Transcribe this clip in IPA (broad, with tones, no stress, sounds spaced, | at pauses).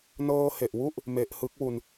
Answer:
n ɤː˧ h e˨˩ ʔ w u˥˩ ʔ | m e˨˩ ʔ h ɯ˦˥ k̚ w u˧ n